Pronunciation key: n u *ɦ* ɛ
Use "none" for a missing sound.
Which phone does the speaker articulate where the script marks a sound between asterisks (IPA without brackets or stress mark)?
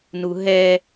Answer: ɦ